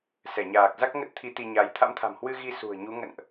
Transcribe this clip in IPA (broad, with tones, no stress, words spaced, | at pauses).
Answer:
sɛ˧˩ɲaː˨˩k̚za˦˥k̚ ŋə˦˥t̚t̪ʰi˨˦ t̪i˧ɲa˨˦j t̪ʰa̰˧˥mt̪ʰa̤˨˩mhwɨ˧ ɣi˧ sṳ˨˩ə̯ɲu˨˦ ŋə̰˧˨nʔ